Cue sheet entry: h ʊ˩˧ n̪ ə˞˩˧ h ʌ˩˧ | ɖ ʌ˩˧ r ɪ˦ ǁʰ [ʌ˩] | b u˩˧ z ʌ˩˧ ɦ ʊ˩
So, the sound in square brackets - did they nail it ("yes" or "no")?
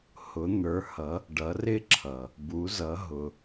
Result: yes